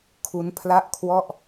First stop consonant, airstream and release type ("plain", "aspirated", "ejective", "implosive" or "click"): aspirated